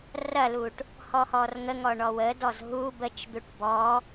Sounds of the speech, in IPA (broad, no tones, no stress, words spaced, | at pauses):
rɐluʈ | hɔhɔrŋəŋɔ ɳɔwədɔz ɦu bət͡ʃd̪uʈ bɔ